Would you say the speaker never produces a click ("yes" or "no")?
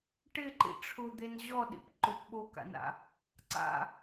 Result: no